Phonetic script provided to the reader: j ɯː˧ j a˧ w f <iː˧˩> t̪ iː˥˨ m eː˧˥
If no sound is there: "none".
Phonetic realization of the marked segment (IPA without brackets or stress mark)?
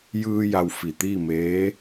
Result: i˧˩